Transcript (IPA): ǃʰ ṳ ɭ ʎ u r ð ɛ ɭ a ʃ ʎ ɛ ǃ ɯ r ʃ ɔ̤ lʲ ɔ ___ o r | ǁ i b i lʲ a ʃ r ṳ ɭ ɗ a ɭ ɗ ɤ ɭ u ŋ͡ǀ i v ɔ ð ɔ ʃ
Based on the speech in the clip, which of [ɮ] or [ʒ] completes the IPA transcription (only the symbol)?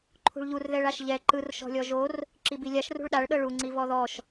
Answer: ʒ